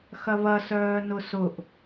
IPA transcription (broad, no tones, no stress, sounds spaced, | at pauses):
x ɐ β ɐ s œː n ʊ s ʊ ʔ